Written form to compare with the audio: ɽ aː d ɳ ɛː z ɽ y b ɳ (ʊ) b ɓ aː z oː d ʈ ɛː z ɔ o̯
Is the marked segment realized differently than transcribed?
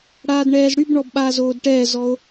yes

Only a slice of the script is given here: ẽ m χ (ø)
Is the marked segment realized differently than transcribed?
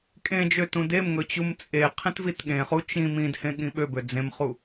yes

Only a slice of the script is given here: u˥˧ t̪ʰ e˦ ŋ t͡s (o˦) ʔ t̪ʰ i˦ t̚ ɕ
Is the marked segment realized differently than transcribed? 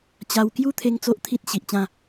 no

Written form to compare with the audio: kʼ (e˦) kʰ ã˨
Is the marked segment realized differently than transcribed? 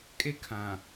no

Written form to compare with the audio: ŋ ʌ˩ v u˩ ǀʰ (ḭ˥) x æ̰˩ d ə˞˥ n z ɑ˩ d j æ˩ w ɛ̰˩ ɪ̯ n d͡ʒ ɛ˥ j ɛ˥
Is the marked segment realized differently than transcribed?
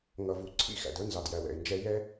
no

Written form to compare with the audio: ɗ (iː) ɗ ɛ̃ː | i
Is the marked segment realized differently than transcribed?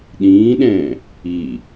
yes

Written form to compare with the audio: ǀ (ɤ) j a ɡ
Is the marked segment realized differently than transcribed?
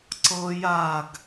no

